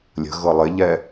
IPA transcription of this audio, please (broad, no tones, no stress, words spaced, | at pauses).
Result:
lʲə̤ɣɤ lˠɪʎɛ